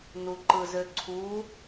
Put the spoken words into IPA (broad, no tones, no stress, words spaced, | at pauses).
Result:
nuǃɯzøǀʰu